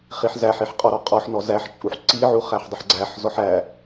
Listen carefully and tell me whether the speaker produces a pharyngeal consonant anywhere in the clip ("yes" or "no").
yes